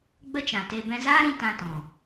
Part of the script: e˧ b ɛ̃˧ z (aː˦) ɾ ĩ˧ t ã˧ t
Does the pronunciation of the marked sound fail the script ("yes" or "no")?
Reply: no